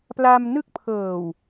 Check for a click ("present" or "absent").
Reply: absent